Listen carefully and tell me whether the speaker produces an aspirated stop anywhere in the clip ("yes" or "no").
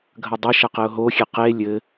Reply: no